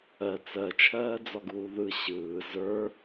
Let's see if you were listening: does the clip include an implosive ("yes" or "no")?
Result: no